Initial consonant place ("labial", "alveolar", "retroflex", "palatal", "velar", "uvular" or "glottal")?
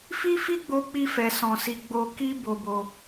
labial